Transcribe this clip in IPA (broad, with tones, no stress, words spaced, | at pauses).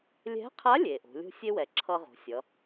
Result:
lʲɛ̤˧˥qʰa˧˥ lʲe˩ʔo̤˩˧lʲo̤˥ sʲe˥wɛ˩ǁʰʌ˧ ʁo̤˩˧sʲʌ˩˧